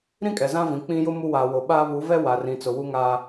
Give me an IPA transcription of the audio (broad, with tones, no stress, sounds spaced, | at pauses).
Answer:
ɾ ĩ˦ kʼ ɛ˨ z ã˦ v ĩ˨ k͡p ĩ˦ j ʊ˦ m u˦ w aː˨ w o˨ ɓ aː˦ β u˨˦ v ɛ˦ w a˨ r ĩ˨ t͡s ʊ˨ w u˦ ŋ aː˦